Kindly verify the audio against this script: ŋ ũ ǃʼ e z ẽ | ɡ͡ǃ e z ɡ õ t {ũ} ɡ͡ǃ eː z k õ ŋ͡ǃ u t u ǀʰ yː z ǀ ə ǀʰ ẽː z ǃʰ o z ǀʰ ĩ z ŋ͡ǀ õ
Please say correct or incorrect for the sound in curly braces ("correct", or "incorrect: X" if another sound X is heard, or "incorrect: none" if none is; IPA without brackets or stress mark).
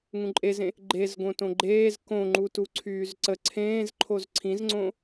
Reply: incorrect: õ